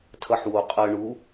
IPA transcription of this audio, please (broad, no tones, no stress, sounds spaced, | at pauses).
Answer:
tʰ ʌ ħ w o qʼ ʌ ɳ u